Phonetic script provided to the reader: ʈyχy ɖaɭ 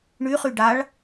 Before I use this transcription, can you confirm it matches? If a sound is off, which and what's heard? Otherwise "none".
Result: ʈ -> ɳ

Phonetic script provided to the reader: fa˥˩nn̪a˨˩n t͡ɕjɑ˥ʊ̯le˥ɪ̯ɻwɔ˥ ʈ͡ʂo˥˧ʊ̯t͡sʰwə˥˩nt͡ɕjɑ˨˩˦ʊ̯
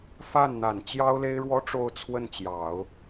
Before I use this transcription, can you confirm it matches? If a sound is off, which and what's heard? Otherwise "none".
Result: none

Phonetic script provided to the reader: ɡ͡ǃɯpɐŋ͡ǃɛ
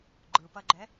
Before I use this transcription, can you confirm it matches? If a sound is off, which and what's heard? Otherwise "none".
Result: ŋ͡ǃ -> ɡ͡ǃ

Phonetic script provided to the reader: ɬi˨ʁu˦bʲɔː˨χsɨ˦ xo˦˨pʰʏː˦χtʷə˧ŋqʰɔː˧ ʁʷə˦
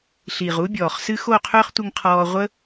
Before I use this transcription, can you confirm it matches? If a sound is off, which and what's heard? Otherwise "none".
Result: pʰ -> qʰ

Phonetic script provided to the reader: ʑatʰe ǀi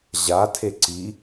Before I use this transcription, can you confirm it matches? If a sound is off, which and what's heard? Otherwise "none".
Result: none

